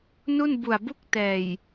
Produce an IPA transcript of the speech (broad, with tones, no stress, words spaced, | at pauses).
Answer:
nu˥˩nbu˨˩a̯bu˥˩k̚tɛː˨˩j